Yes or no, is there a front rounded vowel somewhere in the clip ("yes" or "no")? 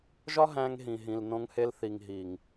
no